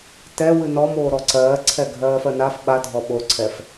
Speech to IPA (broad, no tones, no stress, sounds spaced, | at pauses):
t ɛ w ɨ n ɔ m oː ɾ ɔ ǀ ɜː ǀʰ ɛ ɡʱ ɜː f ɜ n a f ɓ a dʱ ɔ ɓ o ǀʰ ɛ f